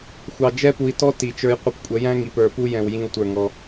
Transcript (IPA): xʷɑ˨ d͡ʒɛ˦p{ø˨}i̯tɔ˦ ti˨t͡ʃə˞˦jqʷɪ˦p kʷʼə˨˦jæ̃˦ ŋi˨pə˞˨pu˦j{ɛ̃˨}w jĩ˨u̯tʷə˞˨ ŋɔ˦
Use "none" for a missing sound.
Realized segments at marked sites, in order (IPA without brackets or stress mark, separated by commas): u˨, ɛ̃˨